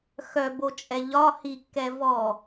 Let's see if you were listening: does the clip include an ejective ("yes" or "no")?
yes